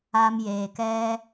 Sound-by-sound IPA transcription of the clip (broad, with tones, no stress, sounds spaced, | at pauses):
a˧ m j eː˨ k ɛ˦